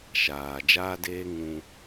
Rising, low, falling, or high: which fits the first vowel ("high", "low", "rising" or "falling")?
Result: low